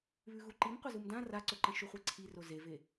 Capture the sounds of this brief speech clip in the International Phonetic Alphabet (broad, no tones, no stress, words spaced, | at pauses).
βʉɣuǃim qʷezumdã raǀɵǃɐ̃ ʃuχʷeǀʰiro zeve